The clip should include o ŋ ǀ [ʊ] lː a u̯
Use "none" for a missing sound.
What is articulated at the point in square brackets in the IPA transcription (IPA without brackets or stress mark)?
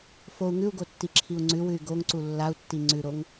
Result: u